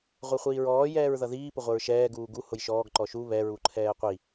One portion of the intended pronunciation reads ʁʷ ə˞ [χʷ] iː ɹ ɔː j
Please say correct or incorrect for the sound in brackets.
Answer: correct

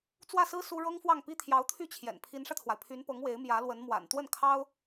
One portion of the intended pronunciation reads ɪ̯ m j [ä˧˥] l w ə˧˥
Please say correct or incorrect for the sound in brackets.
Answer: correct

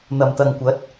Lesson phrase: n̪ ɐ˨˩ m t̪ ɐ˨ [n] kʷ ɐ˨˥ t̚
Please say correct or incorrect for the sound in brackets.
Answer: incorrect: ŋ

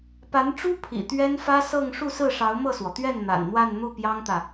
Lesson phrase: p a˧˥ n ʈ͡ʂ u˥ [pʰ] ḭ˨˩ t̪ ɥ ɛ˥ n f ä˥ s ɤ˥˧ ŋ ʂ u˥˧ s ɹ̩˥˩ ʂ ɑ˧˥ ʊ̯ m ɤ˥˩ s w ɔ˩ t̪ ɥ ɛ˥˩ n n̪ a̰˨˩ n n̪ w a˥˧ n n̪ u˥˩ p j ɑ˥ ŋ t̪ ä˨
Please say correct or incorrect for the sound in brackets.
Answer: correct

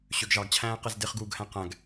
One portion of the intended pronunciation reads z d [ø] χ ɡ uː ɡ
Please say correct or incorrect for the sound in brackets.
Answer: incorrect: e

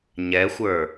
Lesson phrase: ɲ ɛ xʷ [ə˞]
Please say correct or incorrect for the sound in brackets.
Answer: correct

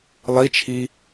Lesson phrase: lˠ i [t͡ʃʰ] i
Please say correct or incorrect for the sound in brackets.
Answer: correct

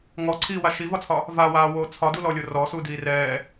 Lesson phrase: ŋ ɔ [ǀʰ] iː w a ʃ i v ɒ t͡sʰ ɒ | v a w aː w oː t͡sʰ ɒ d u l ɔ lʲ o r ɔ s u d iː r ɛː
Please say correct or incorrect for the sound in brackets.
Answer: correct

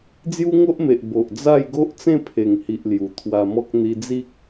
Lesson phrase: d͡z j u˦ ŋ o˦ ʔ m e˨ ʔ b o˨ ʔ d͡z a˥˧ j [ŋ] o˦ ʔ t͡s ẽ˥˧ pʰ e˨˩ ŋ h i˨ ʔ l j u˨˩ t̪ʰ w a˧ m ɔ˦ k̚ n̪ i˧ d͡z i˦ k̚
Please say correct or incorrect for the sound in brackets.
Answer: incorrect: ɡ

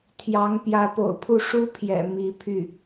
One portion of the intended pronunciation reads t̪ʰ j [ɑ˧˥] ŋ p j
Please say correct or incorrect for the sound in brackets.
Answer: correct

